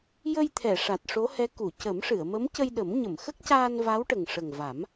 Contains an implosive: yes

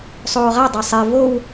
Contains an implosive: no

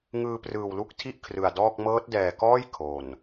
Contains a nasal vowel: no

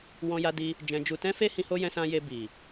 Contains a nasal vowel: yes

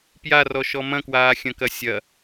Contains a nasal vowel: yes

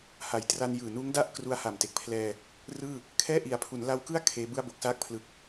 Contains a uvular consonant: no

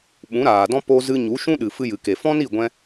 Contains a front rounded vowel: no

